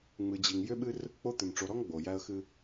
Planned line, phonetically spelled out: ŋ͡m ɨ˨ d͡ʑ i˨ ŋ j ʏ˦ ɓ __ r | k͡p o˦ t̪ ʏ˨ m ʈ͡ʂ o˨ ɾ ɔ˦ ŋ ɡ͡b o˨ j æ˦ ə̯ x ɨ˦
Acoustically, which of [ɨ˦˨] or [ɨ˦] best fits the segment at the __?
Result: ɨ˦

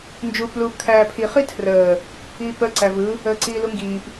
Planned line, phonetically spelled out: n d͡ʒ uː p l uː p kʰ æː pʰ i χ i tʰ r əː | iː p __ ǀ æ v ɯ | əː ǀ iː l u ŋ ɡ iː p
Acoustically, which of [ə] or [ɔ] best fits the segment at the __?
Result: ə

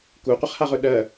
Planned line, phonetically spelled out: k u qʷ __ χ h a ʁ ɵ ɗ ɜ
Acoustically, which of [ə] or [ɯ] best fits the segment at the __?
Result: ə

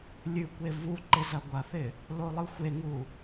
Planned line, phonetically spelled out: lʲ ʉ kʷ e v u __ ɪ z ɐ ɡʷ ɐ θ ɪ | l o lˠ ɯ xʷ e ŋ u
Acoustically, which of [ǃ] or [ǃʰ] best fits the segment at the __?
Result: ǃ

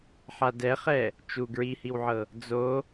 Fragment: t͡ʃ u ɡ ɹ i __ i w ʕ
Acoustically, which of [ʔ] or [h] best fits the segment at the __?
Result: h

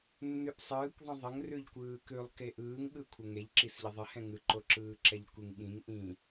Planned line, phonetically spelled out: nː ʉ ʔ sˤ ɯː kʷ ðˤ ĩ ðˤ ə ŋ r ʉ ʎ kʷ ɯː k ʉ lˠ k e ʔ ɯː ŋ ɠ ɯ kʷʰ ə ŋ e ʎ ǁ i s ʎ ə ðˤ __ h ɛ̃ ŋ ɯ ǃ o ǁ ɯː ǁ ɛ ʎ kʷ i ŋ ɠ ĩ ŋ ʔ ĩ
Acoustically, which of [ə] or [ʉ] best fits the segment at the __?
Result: ə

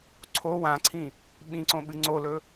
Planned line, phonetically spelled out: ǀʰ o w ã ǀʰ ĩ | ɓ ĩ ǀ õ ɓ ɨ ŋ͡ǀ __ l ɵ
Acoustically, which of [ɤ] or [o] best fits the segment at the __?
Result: o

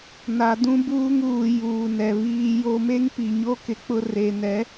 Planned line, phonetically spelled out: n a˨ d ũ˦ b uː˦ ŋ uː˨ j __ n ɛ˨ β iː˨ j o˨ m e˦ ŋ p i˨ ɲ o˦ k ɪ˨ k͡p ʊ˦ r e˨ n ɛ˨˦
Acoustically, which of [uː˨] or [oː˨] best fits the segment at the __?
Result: uː˨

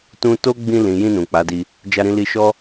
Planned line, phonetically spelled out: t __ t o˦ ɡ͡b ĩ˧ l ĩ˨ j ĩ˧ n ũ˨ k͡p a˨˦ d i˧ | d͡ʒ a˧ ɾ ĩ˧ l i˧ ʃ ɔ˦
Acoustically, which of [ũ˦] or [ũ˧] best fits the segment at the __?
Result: ũ˦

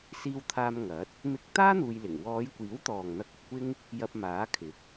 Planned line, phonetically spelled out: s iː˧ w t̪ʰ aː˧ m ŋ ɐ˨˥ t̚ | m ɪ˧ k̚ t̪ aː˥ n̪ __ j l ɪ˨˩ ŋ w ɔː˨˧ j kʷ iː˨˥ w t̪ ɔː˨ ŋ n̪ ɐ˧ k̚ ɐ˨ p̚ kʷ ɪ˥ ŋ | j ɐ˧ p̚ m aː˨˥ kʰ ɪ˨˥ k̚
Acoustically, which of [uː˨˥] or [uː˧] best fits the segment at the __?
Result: uː˧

